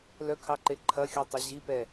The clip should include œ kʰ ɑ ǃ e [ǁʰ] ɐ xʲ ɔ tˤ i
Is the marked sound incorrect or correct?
incorrect